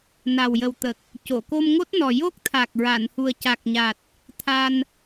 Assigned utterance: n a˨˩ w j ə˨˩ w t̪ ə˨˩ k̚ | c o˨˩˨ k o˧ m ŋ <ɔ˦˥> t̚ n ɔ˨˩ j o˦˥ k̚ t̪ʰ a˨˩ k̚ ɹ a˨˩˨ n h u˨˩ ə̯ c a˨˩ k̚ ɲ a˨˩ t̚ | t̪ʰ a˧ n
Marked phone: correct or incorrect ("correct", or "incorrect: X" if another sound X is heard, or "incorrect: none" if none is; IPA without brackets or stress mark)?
incorrect: o˦˥